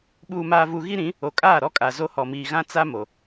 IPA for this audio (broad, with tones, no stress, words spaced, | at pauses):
ɓuː˨maː˨vu˨ ɣi˦ɾĩ˨˦ | o˨kʼaː˦˨ ɾɔ˦kʼa˨ zo˦hɔ˨miː˨ ɣã˦ t͡sa˦ mo˨